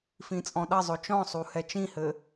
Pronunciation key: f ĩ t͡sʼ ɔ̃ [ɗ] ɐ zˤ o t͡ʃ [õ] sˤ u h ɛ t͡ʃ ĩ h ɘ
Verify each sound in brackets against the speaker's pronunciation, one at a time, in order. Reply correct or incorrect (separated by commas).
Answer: correct, incorrect